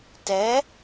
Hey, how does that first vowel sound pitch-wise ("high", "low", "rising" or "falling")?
rising